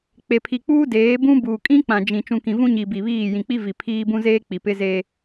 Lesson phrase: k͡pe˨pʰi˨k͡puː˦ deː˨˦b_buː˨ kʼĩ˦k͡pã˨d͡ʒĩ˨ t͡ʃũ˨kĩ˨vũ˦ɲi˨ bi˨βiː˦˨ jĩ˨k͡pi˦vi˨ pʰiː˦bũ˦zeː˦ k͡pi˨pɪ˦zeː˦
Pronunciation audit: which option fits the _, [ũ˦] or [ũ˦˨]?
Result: ũ˦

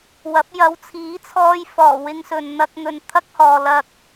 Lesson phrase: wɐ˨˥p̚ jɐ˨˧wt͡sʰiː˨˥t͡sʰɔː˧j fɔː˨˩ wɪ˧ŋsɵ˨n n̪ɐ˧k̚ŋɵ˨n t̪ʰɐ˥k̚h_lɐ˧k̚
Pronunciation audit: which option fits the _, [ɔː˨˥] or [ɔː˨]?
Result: ɔː˨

